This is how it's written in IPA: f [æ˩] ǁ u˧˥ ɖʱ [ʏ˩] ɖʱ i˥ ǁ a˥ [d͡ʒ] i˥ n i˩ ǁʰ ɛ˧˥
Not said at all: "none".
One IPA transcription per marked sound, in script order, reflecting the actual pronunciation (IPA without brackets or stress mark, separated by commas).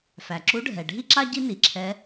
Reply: æ˩, ɛ˩, ɟ